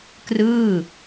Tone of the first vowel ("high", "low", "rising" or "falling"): falling